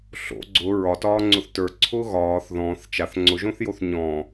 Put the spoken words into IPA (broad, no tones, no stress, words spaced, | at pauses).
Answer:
ɬo̰ ɡ͡ǀʊ ɹɒtɒːŋ͡ǀʊθ tə˞ǀʰʊː ɣɒːθ ðɔ̃ːθ t͡ʃaθ ŋ͡ǀʊʒõθjoθ ɲɔ̃